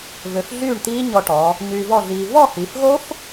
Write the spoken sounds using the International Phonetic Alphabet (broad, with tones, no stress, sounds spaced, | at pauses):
v ø˧ f ɮ yː˥˨ ɳ t̪ iː˦˥ ɲ ɔ˧ ʈ ɔ˩˧ | ɲ yː˧ v ɔ˥˨ ɮ iː˧ v ɔ˥˨ h i˩˧ f ɣ o˦˥ f